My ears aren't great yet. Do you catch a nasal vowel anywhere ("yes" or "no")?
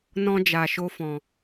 yes